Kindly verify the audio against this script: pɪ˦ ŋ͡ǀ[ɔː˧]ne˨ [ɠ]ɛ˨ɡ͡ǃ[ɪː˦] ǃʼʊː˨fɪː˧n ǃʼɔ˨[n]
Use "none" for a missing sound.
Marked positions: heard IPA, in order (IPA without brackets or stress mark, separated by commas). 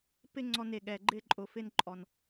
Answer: ɔ˧, ɠ, ɪː˦, n